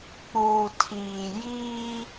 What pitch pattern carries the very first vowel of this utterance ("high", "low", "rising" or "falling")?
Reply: low